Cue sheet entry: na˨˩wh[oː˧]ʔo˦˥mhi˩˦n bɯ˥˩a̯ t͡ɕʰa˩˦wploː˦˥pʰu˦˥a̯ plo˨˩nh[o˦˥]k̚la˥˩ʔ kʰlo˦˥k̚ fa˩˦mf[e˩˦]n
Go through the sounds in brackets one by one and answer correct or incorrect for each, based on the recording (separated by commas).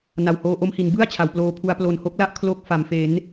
correct, correct, correct